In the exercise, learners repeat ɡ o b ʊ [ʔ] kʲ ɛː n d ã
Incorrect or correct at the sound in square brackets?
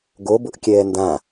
correct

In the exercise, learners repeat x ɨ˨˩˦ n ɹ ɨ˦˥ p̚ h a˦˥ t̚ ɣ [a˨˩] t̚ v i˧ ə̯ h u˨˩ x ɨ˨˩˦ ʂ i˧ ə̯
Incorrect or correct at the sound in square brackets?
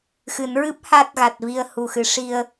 correct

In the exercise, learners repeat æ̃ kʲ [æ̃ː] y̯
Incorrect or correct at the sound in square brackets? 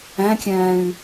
correct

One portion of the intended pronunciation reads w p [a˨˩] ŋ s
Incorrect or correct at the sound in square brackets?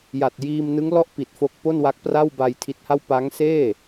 incorrect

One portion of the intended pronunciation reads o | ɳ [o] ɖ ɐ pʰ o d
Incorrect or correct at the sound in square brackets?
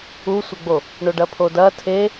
correct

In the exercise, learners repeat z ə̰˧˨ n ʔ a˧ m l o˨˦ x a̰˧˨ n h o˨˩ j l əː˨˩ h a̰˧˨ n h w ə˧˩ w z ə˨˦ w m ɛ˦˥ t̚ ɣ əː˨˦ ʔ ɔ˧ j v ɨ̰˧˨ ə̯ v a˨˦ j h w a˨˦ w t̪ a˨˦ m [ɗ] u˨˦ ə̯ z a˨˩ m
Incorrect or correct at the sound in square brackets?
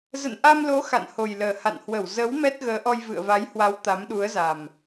correct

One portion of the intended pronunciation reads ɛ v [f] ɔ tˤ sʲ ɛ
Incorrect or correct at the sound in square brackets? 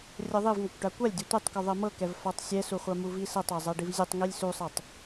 correct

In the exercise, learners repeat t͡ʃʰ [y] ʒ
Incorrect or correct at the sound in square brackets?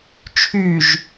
correct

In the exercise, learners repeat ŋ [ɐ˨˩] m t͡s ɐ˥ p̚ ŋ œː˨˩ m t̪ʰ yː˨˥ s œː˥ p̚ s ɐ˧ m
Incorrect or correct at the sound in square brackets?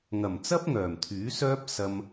correct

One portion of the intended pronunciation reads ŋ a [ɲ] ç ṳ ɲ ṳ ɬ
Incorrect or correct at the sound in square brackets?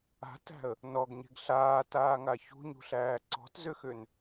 incorrect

